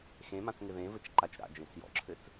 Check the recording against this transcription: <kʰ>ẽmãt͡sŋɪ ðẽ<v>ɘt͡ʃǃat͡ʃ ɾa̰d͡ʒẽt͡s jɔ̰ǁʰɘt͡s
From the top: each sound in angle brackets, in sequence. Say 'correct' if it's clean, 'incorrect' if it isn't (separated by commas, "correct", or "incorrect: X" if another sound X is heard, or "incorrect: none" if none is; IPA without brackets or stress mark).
incorrect: x, correct